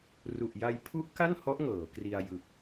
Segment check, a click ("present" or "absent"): absent